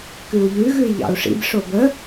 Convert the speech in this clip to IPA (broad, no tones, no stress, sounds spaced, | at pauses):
k ʉ u̯ ʎ ʉ ɣ ʉ i̯ ʎ ɑ̰ u̯ ʂ ḭ b ʂ o b ə